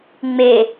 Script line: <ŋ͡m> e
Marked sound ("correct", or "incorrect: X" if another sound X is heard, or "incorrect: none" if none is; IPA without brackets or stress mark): correct